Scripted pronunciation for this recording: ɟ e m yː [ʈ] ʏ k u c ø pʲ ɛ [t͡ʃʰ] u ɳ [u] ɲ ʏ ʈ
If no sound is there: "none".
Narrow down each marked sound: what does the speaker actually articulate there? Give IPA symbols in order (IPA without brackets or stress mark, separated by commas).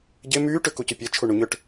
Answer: ʈ, t͡ʃʰ, u